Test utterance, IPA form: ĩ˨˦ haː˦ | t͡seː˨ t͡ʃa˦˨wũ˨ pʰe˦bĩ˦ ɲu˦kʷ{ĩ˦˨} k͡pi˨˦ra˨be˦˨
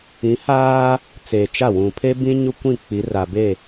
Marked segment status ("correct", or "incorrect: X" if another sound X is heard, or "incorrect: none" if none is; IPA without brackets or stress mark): correct